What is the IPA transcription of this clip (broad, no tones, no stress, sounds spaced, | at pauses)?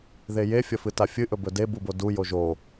ð e j e fʲ ɐ f ɨ t a fʲ ɨ ʔ ɵ b ɵ d e b u b o d u j o ʒ o